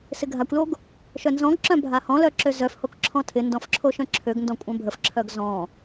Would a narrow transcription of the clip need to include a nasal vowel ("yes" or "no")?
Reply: yes